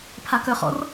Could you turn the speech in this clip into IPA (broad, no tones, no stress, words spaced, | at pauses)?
pʰakœχɔ̰r